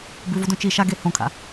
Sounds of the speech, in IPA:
bʉvodõ t͡ʃi ʃaɡe hõkʰa̰

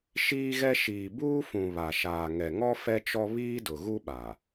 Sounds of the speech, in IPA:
ʃiː˦ɣɛ˦ ʃiː˨buː˦fũ˨ βa˨ʃaː˨ŋɛ˨ŋɔ˦ fɛ˦t͡ʃɔ˦ βiː˦dʊ˨ ɣu˦ɓa˨

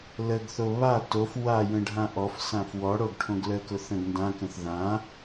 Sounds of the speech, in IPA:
ləɡθo βa tof wajə̃ ɖʱãʔɔfsãf wɔɽoɡ ʈʰõɡləkʊ θə̃ɡndãkə̃θ ðã

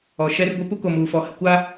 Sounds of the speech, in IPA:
ɔ˨ʃɛ˦rɡʷɛ˦ pu˦ko˨muː˨fɔ˨ hɪ˨kʷa˦

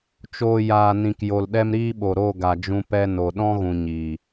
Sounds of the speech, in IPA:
t͡ʃoː˨ jaː˨nĩ˨k jo˨lɗɛ˦mɾiː˦ɓo˨ ɾo˦˨ɡa˨d͡ʒũ˧ pɛ˧ no˨ɗɔ̃˦ɣũ˨ ɲiː˨

